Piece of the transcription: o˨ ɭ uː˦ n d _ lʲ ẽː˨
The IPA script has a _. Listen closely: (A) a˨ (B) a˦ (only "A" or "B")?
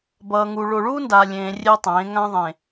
A